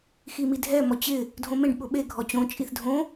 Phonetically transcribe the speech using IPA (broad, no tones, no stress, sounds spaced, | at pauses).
x i m i dʱ ɛ m ɔ t͡ɕ ɪ | dʱ õ m ẽ ɖ ɓ ʊ ɓ e ɡʱ ɔ t͡ɕ õ t͡ʃʼ i θ dʱ õ